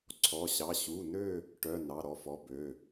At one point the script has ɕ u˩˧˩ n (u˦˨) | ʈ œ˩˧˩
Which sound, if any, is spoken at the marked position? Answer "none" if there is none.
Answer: ø˦˨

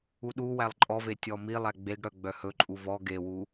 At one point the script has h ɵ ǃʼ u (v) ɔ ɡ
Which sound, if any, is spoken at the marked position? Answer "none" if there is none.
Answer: v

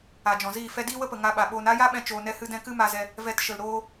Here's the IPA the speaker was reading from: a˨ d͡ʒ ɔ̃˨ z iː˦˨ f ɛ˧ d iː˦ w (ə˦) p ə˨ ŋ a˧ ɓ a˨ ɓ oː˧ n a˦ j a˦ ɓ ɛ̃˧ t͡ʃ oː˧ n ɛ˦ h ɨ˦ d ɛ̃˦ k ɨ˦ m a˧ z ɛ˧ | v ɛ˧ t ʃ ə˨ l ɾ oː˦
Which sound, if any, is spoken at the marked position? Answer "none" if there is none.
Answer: ə˦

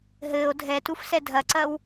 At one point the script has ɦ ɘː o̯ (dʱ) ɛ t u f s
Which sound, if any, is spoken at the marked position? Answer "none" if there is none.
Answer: dʱ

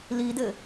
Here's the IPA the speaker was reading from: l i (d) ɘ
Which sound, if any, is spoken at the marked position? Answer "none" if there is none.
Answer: d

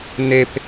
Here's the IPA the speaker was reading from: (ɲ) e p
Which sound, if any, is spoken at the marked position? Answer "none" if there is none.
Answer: n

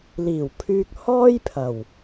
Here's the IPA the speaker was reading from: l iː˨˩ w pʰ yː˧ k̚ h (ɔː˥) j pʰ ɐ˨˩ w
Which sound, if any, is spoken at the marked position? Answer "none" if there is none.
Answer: ɔː˥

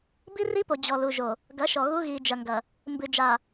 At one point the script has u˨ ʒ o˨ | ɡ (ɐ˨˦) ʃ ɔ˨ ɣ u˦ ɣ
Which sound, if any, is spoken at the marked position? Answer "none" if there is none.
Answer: ɐ˨˦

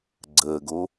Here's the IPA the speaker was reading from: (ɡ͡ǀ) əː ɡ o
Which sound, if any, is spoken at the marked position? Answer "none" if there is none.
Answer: ɡ͡ǀ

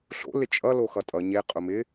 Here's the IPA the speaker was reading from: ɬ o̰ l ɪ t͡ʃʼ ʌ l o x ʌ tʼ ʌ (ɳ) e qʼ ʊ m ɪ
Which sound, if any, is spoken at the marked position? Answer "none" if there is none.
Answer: ɲ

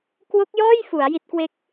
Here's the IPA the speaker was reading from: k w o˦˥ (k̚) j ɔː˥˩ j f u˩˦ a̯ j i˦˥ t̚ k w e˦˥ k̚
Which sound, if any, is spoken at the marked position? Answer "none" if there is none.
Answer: k̚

